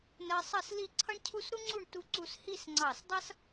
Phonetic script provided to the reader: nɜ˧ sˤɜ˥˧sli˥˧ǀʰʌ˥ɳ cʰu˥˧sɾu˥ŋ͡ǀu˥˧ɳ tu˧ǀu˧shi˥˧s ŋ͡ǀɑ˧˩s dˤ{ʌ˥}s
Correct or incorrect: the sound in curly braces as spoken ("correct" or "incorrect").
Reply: correct